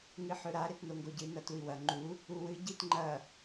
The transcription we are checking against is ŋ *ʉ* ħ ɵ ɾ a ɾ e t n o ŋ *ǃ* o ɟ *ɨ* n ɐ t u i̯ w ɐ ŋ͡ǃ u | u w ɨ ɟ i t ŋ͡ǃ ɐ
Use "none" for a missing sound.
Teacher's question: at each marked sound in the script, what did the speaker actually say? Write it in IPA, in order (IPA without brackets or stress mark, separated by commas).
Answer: ɨ, ɡ, ɨ